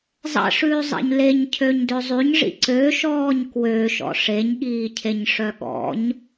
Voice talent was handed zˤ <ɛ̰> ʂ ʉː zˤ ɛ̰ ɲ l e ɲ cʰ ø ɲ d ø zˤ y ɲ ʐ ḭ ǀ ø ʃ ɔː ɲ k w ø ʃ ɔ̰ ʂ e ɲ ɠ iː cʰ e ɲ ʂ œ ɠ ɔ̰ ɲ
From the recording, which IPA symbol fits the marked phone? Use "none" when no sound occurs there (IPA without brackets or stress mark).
ɛ̰